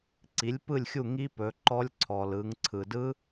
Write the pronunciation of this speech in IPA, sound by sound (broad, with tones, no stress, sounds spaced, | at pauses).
ǀ i˩˥ lʲ p ɯ˥˩ lʲ xʲ u˥˩ ŋ i˦˥ p ɵ˩˧ ǃ ɔ˦˥ lʲ ǀʰ ɔ˩ l ɯ˩˧ ŋ ǀʰ ɯ˩ d ɯ˦˥